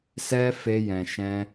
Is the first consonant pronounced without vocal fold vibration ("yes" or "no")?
yes